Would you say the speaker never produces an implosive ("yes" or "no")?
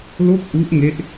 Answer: yes